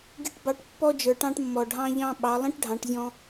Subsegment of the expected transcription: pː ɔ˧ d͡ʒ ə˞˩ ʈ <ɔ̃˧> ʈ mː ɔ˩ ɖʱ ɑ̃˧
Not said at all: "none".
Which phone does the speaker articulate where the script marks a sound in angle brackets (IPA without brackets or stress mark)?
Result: ɑ̃˧